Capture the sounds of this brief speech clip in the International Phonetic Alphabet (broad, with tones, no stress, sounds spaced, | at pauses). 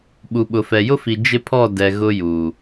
ɓ u˨ ɓ ʊ˨ f ɛ˨ j ʊ˦ f i˨ d͡ʒ ɪ˦ pʰ ɔ˦˨ d ɛ˨ ɣ ʊ˦ j uː˨